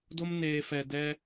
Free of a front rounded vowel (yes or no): yes